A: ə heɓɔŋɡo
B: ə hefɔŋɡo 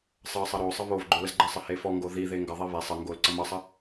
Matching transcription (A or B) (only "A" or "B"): B